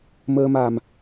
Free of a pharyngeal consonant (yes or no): yes